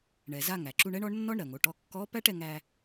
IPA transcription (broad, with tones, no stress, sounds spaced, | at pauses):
ɳ ɛ˩ z a˧ ŋ æ˩ ǁ u˧ ɳ ɛ˥ ɳ ɔ˧˥ ɳ nː ɔ˥ ɳ ɾ ɜ˩ ŋ o˩˧ ʈ ɔ˧ kː ɔ˧˥ p æ˥ ʈ ɛ˧ ŋ æ˧